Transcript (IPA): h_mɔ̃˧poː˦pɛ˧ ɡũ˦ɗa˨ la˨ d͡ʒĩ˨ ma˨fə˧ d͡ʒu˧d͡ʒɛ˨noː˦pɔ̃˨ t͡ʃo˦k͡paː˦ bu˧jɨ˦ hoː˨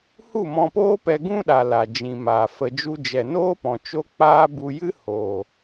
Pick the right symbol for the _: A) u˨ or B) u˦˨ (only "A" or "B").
B